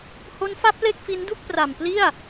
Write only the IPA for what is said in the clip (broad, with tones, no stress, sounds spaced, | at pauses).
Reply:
h o˦˥ n f a˦˥ p̚ l e˥˩ k̚ f i˦˥ n d u˥˩ k̚ p r a˨˩ m p l i˥˩ a̯